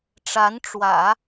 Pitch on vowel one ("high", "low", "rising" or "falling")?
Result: rising